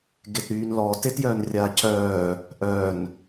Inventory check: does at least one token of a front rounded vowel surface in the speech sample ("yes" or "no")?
yes